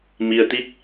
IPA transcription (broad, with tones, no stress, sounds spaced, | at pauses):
m i˧ ə̯ t̪ i˦˥ k̚